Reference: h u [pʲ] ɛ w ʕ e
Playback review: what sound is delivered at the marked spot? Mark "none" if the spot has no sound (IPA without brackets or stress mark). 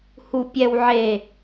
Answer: pʲ